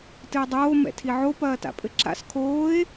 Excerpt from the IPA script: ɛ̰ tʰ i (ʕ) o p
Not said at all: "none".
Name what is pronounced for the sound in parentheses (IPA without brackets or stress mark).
ʕ